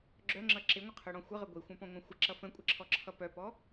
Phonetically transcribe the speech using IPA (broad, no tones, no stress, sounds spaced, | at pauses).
ɡ͡ǁ œ ŋ͡ǁ ʌ ǁ ɪ ŋʷ ə qʰ œ ɽ ɔ̃ xʷ ə ʁ ə ɡʷ i xʷ œ̃ p ɔ̃ ŋʷ œ̃ xʷ ɪ ǁ ʌ f ə̃ kʷʼ ɪ ǁʰ ɔ ǁʰ ʌ p œ p ɔ